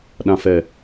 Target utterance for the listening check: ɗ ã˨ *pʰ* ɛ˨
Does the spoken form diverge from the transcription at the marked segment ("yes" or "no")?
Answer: yes